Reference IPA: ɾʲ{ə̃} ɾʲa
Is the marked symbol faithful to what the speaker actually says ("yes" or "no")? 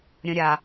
yes